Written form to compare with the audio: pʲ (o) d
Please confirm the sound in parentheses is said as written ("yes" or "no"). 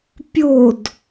yes